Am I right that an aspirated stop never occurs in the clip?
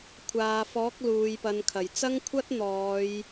no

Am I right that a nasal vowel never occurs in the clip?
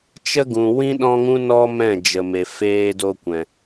no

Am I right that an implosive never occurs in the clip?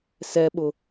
no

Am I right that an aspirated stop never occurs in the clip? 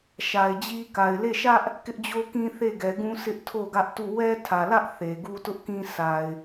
no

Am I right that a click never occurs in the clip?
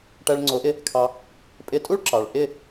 no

